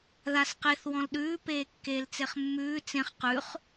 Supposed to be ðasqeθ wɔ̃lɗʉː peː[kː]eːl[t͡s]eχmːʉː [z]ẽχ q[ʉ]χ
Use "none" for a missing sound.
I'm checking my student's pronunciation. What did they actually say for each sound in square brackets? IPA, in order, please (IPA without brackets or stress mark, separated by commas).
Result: kː, t͡s, t͡s, ʉ